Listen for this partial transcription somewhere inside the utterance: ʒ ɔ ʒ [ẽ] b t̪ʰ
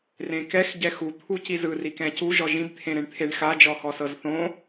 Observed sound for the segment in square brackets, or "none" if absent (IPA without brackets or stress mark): ĩ